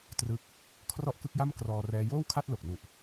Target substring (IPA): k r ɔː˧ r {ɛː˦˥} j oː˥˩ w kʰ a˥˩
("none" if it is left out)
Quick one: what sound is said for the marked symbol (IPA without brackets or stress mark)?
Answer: ɛː˦˥